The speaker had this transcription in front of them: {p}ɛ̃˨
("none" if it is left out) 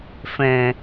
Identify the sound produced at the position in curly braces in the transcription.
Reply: f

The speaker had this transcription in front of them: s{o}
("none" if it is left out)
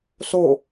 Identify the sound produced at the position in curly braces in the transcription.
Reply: o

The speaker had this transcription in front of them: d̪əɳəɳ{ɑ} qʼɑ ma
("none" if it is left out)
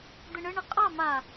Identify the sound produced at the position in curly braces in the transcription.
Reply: ə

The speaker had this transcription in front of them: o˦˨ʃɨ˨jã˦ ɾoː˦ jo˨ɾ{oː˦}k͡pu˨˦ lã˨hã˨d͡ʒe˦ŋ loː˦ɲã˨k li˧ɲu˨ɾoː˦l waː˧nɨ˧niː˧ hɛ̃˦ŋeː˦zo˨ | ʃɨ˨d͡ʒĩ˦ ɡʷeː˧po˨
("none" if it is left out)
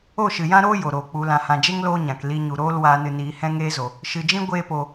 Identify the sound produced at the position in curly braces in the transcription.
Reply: oː˨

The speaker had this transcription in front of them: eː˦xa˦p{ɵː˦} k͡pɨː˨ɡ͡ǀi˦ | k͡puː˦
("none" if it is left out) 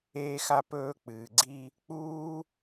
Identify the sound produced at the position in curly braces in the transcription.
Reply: ɵː˦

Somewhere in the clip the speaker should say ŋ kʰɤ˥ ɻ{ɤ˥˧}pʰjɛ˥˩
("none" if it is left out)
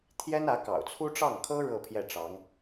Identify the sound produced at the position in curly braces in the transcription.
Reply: ɤ˥˧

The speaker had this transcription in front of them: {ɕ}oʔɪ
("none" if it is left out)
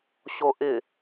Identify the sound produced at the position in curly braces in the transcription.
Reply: ɕ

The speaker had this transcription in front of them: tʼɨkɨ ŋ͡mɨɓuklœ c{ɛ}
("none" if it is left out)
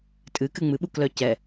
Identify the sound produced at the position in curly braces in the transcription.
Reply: ɛ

